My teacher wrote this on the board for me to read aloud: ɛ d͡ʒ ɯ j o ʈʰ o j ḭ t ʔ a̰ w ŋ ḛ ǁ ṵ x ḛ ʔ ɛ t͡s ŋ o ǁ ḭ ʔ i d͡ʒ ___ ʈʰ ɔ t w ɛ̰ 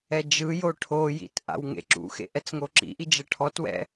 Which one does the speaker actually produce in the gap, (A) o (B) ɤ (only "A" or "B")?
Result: B